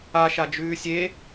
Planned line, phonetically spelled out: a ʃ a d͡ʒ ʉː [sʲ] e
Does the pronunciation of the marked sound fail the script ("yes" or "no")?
no